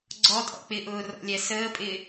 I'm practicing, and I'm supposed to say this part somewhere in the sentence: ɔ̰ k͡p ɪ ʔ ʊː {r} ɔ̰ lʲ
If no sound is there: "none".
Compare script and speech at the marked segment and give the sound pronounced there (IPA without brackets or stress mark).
r